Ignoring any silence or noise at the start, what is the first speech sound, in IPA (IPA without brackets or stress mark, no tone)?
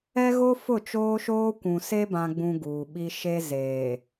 ɛ